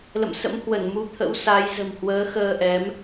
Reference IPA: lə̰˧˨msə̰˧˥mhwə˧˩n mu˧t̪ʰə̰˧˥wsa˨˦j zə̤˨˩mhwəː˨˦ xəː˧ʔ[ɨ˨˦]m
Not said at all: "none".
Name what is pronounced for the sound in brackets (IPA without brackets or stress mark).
ɛ˨˦